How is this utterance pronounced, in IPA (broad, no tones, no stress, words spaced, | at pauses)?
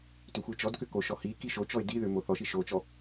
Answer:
tʏxʷit͡ʃɔdkʏ koʃɔhiki ʃot͡ʃɔɪ̯ diðʏ moθɔʃi ʃot͡ʃɔ